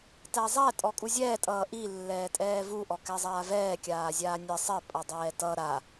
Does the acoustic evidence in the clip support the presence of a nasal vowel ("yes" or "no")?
no